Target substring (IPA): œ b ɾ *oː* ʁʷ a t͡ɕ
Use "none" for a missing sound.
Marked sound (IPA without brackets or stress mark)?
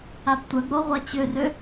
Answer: o